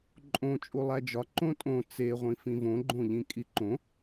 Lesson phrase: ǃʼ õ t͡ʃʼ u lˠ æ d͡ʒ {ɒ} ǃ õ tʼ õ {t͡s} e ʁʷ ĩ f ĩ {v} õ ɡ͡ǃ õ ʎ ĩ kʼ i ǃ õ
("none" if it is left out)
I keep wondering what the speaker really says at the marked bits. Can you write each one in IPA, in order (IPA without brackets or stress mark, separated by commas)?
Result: ɒ, t͡s, v